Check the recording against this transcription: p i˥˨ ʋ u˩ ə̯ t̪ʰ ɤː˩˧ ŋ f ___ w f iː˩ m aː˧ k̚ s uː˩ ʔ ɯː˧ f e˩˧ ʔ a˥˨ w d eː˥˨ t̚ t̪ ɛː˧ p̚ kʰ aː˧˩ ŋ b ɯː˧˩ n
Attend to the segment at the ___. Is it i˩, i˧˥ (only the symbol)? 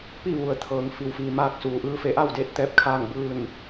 i˩